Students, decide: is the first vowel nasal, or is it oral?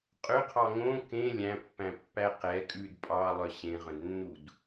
oral